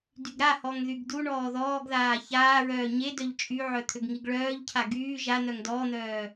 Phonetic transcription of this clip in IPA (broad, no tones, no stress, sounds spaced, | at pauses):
d y ɡ ɾ a h ɔ ŋ ð y ɡ d u ɳ ɔː ð ɔː ɡ ð aː ç aː ɹ œː ɲ e d œ ʎ t͡ʃʼ y ʕ œ t̪ʰ ø ɡ ŋ i ɡ ɭ œː ʎ cʰ a ɡ yː ʒ a n̪ œ ŋ d ɔ n̪ œː